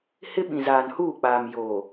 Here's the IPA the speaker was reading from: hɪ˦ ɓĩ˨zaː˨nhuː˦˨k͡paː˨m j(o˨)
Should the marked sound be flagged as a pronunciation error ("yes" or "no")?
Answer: no